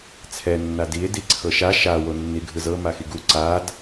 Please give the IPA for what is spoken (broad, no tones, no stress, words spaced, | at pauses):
t͡sʰɛ nːadie̯ diǀʰɤʃa ʃa wonːiɡʱɯzɤ maxiɡu ǀad